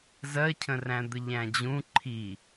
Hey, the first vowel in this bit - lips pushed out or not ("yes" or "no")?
no